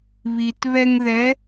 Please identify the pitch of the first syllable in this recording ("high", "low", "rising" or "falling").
low